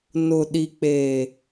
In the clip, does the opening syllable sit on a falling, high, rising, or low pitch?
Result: low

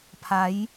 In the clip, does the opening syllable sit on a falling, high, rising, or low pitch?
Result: rising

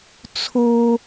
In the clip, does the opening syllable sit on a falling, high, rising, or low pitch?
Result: high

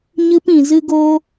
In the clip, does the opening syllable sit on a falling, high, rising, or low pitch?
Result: high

